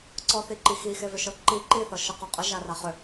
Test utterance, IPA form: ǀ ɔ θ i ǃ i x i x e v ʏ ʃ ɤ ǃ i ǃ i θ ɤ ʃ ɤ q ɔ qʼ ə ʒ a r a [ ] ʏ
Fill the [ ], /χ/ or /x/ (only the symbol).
χ